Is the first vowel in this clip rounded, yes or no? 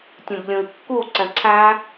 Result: yes